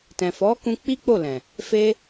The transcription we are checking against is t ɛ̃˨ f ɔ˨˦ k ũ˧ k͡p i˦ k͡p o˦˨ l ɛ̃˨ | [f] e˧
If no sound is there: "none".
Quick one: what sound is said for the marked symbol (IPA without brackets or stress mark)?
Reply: f